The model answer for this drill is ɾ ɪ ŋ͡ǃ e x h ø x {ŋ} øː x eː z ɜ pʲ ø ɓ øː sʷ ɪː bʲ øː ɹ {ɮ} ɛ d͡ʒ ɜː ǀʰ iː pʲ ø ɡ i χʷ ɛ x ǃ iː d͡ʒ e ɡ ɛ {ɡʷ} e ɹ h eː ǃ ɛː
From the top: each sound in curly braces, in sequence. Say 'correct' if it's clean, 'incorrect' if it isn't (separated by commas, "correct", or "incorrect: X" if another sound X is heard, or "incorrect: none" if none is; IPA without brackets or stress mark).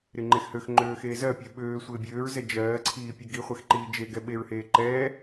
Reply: incorrect: ŋ͡ǃ, incorrect: z, incorrect: ɓ